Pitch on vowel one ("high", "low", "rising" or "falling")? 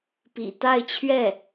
low